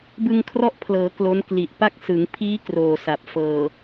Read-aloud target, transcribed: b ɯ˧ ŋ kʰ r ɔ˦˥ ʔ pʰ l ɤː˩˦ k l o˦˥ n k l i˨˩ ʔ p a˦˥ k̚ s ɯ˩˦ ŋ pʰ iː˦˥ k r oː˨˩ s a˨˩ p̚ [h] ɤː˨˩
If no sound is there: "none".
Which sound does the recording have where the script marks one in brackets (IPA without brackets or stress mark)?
f